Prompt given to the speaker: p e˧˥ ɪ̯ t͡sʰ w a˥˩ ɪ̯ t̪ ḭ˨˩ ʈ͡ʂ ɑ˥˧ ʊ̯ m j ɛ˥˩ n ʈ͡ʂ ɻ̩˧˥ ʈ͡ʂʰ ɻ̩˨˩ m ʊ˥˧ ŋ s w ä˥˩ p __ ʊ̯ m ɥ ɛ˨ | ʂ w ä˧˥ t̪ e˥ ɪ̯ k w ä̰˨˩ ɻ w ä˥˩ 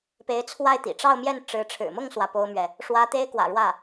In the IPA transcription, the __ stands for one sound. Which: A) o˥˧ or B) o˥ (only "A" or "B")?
B